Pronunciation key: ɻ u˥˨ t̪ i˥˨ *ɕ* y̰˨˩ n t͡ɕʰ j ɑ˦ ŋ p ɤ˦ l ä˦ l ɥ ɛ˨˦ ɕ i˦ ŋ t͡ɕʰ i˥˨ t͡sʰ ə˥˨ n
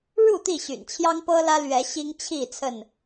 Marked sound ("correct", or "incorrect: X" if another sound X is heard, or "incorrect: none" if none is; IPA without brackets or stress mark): correct